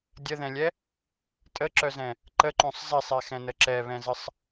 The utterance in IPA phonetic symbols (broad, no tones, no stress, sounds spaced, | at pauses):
dʲ ə ð ɛ̃ lʲ ɛ | tʼ ə ǁ œ z ɛ̃ | ǃ ə ǃ õ sˤ z ɛ sˤ ɛ x ɛ̃ n ə ǁ ɛ β ɛ̃ z ə sˤ